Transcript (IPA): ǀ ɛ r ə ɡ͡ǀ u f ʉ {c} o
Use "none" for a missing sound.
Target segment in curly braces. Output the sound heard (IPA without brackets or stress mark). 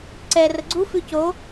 c